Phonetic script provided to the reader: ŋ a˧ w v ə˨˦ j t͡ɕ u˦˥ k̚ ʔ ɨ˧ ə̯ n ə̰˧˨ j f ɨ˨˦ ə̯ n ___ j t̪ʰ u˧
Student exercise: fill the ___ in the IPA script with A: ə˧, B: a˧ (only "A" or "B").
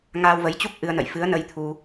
A